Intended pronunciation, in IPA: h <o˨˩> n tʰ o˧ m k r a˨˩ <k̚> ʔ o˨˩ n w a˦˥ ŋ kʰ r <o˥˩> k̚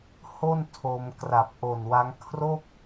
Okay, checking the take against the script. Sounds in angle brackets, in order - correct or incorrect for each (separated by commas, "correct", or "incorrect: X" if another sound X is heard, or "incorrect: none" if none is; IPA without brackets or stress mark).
incorrect: o˥˩, incorrect: p̚, correct